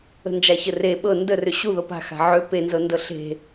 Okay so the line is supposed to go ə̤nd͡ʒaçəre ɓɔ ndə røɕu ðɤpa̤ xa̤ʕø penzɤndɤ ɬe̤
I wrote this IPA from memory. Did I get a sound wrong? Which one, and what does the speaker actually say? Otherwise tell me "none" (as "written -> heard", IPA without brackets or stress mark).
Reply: ɔ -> ɤ